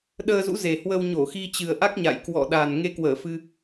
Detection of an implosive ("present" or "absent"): present